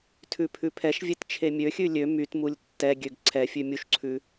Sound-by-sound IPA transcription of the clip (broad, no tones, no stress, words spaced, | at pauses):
tʰʉpʰʉpʰɛʃvʲet t͡ʃʰemʲøxʲʉ lʲø mytmulʲ tːɛɡʲøɡ ǀʰɛfʲʉ mʲuʃǀʰʉ